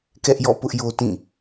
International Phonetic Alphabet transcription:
k ɛ˦ ʔ j ɔ̰˦˨ p ʊ˦ ʔ j o˦ t ĩ˦˨

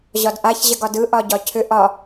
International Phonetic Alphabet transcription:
ʑ ɒ d ʔ a ç ʑ ə ɡ ɒ d ɯ ʔ ɒ ɟ ɒ cʰ ʏ ʔ ɒ

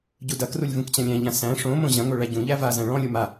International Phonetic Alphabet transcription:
ɟ u d ɐ k r u lʲ v ũ k t͡ɕ ɐ̃ lʲ æ̃ ʎ ã s æ̃ ʂ õ m õ ʑ ɐ̃ ŋ o ɭ æ ɟ ũ ʎ æ v a z æ̃ ɭ ɔ̃ lʲ o m a

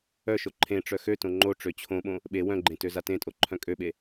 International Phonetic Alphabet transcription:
œ ʃ o ǃʰ ẽ ʈ͡ʂ œ x ø t õ ŋ͡ǃ o ʈ͡ʂ ø t͡ɕʰ õ ɓ õ | ɓ e w œ̃ ɡ͡ǃ ẽ t ø z a t ẽ tʼ o ǃʰ œ̃ kʼ ø ɓ e

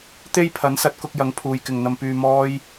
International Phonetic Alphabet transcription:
t̪ e˥ j pʰ ɐ˨˥ n s ɐ˨˥ t̚ k ʊ˧ k̚ j ɐ˨˥ ŋ pʰ uː˨ j k ɪ˨ ŋ n̪ ɐ˧ m p yː˧ m ɔː˥ j

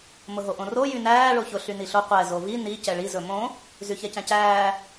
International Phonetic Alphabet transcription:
m ʊ ɦ o ʔ õ r o j y n æː ɭ o ç ʊ ɬ y n i ɬ o qʷ ɛ z o v i n i c ɛ ɭ i z ɵ m õ | z y ç ɛ c æ̃ c æː

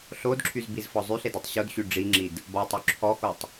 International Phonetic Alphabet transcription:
ɬ o d ǁʰ y z b i z f ɔ zˤ y ɬ e d e tˤ ɕ o d ɕ y ɖ͡ʐ i ŋ͡ǁ i d | b ɔ tˤ y ǁʰ ɔ x o tˤ

